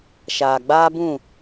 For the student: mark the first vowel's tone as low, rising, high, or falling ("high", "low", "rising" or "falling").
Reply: low